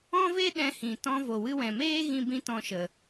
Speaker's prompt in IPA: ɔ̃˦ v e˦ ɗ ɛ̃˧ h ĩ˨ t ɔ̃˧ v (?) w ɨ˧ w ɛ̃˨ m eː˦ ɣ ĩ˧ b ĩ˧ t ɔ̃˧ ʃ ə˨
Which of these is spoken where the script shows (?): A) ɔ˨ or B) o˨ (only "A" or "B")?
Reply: B